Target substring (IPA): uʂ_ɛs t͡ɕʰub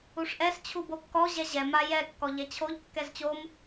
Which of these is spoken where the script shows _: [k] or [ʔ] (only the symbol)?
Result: ʔ